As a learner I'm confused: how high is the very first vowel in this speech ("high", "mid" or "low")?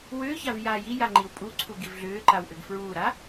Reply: high